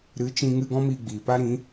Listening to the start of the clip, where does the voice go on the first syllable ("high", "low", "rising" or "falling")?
rising